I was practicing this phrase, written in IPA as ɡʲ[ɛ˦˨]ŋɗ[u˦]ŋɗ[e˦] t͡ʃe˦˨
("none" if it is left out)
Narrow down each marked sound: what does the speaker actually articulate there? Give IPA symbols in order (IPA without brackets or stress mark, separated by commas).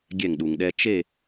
ɛ˦˨, u˨, ɛ˦